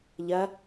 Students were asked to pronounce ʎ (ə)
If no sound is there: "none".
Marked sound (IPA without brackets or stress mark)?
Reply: ɐ